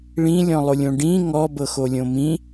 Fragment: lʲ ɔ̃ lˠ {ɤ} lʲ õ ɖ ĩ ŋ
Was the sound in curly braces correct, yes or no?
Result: no